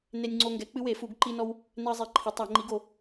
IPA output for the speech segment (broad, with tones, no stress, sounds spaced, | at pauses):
n e˦ nʲ ŋ͡ǀ o˦ ŋ ɡ ɛ˨˥ k͡p ɨ˦ w e˨˩˦ f u˨˩˦ ɡ ǃ i˦ n ɔ˦ w | n ɛ˦ ə̯ zˤ i˨˩˦ ǃʰ e˨˥ tˤ a˨˩˦ ŋ͡ǃ i˨˥ ɡ o˨˩˦